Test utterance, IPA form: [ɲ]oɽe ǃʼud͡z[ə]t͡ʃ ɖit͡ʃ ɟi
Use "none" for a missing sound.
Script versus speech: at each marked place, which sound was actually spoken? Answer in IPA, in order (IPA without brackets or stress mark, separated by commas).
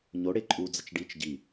ɲ, ə